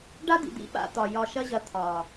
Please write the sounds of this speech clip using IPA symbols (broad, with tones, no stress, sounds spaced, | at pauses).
ɖ a˦ d̪ ḭ˨ d̪ ḭ˦˨ ɓ a̰˧ t̪ ɒ˨ j ɒ˨ ʃ ɐ˧ ʑ ɐ˨ t̪ʰ ɒ˨